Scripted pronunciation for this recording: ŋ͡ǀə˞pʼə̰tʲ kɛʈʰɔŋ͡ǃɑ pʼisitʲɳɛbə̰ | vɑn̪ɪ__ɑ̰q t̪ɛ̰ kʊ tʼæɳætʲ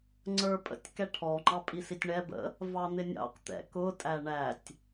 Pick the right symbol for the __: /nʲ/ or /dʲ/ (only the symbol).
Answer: nʲ